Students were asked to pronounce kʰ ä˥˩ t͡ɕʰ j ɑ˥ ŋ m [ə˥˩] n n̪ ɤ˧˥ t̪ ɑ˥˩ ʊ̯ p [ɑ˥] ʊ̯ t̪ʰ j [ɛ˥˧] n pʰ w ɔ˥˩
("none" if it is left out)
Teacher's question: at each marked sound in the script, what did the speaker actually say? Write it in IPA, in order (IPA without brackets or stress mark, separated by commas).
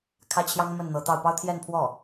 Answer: ə˥˩, ɑ˥, ɛ˥˧